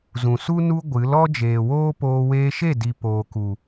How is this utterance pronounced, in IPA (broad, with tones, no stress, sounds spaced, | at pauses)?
z ũ˨ s u˦ n u˧ ɡʷ ɨ˨˦ l ɔ˦ d͡ʒ eː˨ w oː˦ p oː˧ w eː˧ ʃ e˦˨ d i˨ p oː˨ k u˨